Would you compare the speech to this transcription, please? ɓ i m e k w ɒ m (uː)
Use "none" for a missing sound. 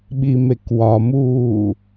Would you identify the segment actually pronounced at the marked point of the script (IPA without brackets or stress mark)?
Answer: uː